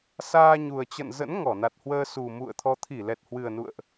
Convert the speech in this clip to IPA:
s aː˧ ɲ u˨˩ ə̯ t͡ɕ ə̰˧˨ n z ə̰˧˥ n ŋ ɔ˧˩ n a˨˩ t̚ h w əː˧ s u˨˩ m ṵ˧˨ ə̯ t̪ʰ ɔ˨˦ t̪ʰ i˧˩ l ɛ˨˩ t̚ h w ɨ˨˩ ə̯ n ṵ˧˨ ə̯ ʔ

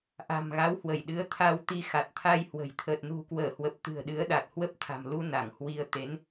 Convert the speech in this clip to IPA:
ʔ a̤˨˩ m ɣ a˨˦ w h w ə˧˩ j ɗ ɨ˨˦ ə̯ t̪ʰ a˧ w t̪ i˧ x a˨˩ t̚ t̪ʰ a˧ j h w ə̤˨˩ j t̪ʰ əː˨˩ t̚ n ṳ˨˩ k w əː˧˩ h w ə˨˩ p̚ t̪ ɨ̤˨˩ ə̯ ɗ ɨ˨˦ ə̯ ɗ a˨˩ t̚ h w ə˦˥ p̚ t̪ʰ a̤˨˩ m l u˧ n a˧˩ ŋ h w i˧ ə̯ t̪ e˨˦ n

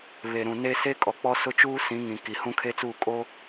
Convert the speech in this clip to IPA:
β e˨ ɾ ũ˨ n e˦ s e˦ kʼ ɔ˨ k͡p ɔ˦ s ʊ˦ t͡ʃ uː˦ s ĩ˨˦ ŋ ĩ˨ k i˨ h ũ˦ kʰ e˦ t͡s uː˦˨ kʼ o˦

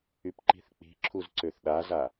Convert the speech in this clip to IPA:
y p ǃ i̤ θ k͡p i̤ ǁʰ u z ǀ ø θ ɗ a z a

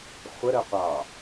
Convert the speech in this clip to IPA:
χʷ ə ɾ ə qʷ ɑ

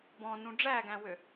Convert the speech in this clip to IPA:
b ɔ̃ n ũ ɖ͡ʐ æ ɡ æ̃ w ø

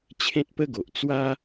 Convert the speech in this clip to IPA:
t͡ɕʰ ẽ˦ t̚ p ə˦ ɡ o˨ ʔ t͡s w a˦

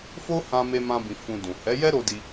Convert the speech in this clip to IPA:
f o˦ h ã˧ m e˦ m ã˦ b ĩ˧ f ũ˧ d ũ˨ h ɛ˨˦ j ɛ˦ ɾ o˧ d i˧

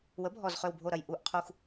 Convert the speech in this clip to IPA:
w ə˩˥ bʱ ɔ˨˩ z χ ø˨˩ w bʱ o˨˩ ɾ ɐ˨˩ j ʔ u˨˩ ʔ qʰ u˨˩ x

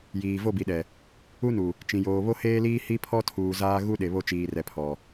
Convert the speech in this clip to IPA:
j iː˨ v o˦˨ b i˨ ɗ ɛ˨ | u˦ n u˨ | t͡ʃ ĩ˨ j oː˨ β o˦ h eː˦ l iː˦ h i˦ pʰ ɔ˦ tʰ uː˨ z aː˦ ɣ u˦ ɗ e˨ β o˦ t͡ʃ iː˨ r ɛ˨ pʰ ɔ˨

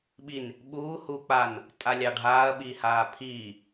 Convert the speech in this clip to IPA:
ɓ i n | ɓ uː h u k͡p a n | tʼ a lʲ ɑ ɖʱ aː ɐ̯ ɓ iː h aː pʰ iː

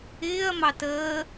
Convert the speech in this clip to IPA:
ɪː ɐ̯ m ɑ t əː

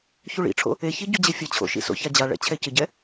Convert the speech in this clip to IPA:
ç u ɭ ḭ ʈ͡ʂʰ o̰ | e ç i ɟ u d͡ʑ e fʲ ɐ t͡ɕʰ o̰ ʃ ḭ s o̰ ç a d͡ʑ a ɭ ɛ̰ t͡ɕʰ ɛ c ɘ ɟ ɛ

